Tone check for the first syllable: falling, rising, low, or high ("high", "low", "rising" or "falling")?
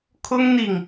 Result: high